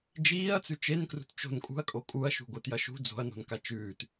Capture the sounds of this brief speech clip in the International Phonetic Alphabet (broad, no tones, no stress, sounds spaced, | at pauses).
d͡ʒ iː ɐ̯ t͡s ʉ t͡ʃ e n k r ṳ t t͡ʃ o̤ n kʼ ṳ ɐ̯ kʼ o kʼ u ɐ̯ ʃ ṳ ɡʷ ɨ t j ɐ ʃ ṳ d͡z o̤ ɐ̯ n o̤ n k a t͡ʃ ʉː t